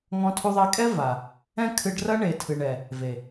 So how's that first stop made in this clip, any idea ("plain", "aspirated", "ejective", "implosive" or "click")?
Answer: aspirated